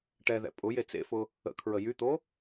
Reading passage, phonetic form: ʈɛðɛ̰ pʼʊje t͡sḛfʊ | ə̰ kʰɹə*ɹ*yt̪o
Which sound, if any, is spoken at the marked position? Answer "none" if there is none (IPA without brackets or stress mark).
j